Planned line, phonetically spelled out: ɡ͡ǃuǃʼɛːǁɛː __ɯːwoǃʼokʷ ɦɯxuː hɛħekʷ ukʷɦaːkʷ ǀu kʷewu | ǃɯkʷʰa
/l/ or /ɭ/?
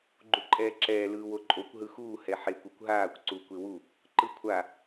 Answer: l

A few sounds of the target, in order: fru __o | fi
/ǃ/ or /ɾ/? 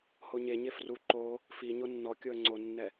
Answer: ǃ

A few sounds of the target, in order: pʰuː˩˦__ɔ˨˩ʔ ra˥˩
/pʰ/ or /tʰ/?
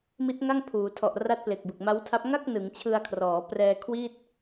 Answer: tʰ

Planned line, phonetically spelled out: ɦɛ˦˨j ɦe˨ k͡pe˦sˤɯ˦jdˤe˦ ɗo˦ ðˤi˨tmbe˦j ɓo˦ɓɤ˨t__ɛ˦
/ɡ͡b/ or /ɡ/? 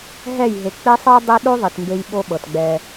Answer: ɡ͡b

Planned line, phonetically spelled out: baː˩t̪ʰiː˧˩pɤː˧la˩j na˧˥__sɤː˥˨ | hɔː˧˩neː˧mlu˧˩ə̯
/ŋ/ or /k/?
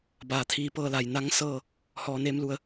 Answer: ŋ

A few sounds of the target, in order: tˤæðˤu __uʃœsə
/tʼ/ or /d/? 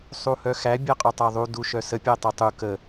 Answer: d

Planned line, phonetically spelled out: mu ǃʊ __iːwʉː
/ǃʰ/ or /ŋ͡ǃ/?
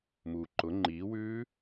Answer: ŋ͡ǃ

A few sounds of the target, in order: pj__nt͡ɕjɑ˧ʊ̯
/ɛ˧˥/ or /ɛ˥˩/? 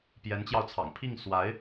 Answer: ɛ˧˥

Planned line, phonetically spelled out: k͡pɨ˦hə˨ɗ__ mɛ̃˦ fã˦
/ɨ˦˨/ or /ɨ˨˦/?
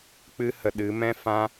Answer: ɨ˨˦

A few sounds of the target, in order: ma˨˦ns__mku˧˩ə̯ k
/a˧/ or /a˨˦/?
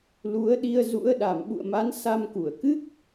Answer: a˧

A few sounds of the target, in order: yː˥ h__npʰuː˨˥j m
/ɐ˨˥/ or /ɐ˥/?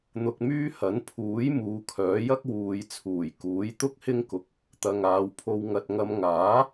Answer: ɐ˨˥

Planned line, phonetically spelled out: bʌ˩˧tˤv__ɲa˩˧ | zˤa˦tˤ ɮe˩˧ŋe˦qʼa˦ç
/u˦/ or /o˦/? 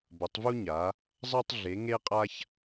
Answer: u˦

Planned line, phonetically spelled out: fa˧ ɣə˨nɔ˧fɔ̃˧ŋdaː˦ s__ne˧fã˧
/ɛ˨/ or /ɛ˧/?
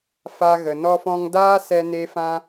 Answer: ɛ˧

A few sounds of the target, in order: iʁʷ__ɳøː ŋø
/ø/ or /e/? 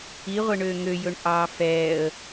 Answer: e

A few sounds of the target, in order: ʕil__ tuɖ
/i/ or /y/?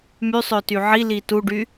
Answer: i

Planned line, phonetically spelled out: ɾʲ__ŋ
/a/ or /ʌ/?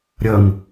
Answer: ʌ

